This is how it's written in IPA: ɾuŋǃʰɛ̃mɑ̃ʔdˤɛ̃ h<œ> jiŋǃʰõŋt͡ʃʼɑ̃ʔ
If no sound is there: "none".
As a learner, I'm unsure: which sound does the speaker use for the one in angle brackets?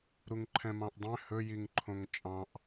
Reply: ɵ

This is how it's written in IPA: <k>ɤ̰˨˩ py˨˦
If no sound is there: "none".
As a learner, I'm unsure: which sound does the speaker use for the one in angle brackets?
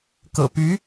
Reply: k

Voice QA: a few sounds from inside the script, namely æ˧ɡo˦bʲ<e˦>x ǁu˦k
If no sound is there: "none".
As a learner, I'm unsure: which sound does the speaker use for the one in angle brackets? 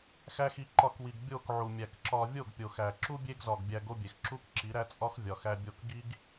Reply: e˨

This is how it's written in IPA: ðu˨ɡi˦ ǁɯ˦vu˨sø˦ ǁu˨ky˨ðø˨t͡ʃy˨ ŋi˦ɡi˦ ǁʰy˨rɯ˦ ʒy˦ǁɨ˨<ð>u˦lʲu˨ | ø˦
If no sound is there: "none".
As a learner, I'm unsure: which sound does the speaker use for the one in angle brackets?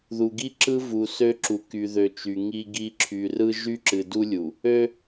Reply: d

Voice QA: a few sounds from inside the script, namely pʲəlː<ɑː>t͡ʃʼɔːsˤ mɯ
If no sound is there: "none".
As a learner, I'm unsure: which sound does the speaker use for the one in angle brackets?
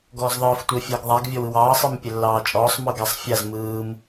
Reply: ɑː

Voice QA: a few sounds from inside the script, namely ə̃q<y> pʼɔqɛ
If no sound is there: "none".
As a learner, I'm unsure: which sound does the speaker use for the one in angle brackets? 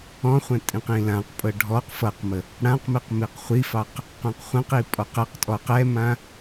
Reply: i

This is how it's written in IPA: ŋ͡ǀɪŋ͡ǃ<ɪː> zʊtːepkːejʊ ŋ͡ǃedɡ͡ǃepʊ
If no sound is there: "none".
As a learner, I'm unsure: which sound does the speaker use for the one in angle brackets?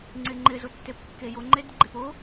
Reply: ɪ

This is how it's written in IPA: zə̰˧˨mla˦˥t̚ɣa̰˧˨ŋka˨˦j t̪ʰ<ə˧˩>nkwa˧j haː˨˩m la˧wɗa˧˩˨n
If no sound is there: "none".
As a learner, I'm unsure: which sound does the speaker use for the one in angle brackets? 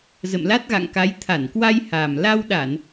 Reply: a˧˩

